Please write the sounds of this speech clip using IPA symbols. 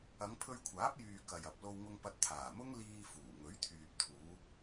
ɐ˨˧ŋpʰɵ˧ɥkʷʰaː˨˥p̚ jyː˨ kɐ˨jɐ˨p̚ lo˧wŋʊ˧ŋpɐ˧t̚ t̪ʰaː˨˩mʊ˥ŋliː˧fuː˨˩ ŋɵ˨˥ɥt̪ʰyː˨p̚t̪ʰuː˨˧

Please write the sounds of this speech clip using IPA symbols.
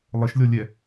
lˠəʃlʲɔlʲɛ

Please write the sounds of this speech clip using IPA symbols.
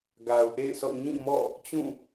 ɡa˨ʊ̯ʔḛ˦˨ɪ̯sʰɔ̰˦˨ ɲĩ˦˨mɔ̰˦˨ | t͡ɕũ˦˨

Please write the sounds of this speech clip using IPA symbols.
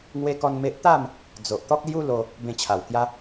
ŋwe˦kɔ˦nme˦ʔ t̪a˥˧m | d͡zo˨ʔt̪ɔ˦k̚lju˦ lo˧ | bẽ˧t͡ɕʰa˨˩w kja˦

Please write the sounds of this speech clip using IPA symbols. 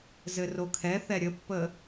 zɘrokʰɛθɛ ɾʲəpːə

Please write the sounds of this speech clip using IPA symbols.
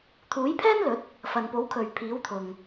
t̪ʰuː˨˥jpʰɛː˥nlɵ˨˥t̚ | fɐ˨npo˨˥wkʰɵ˨ɥ pʰiː˨˥wt̪ʰʊ˨ŋ

